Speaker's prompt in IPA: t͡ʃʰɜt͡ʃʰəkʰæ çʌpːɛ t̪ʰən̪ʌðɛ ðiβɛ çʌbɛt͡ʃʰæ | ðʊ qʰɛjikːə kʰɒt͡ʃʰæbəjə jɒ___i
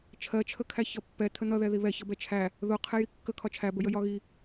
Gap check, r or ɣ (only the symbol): ɣ